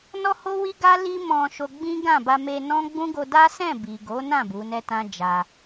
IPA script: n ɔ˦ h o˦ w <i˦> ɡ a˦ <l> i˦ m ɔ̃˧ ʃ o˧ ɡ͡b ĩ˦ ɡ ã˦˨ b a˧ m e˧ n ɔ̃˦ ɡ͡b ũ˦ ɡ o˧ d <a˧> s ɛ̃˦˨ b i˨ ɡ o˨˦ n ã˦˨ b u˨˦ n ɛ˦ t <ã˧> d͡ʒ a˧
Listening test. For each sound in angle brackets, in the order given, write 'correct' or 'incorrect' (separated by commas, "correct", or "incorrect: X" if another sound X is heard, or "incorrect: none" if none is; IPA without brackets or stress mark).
correct, correct, incorrect: a˦, incorrect: ã˦